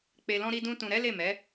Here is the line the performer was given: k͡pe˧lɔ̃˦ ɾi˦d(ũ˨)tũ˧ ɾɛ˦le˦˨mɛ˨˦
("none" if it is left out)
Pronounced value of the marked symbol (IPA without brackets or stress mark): ũ˦